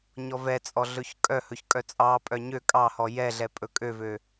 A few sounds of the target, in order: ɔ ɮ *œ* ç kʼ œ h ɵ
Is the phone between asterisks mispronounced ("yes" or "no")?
yes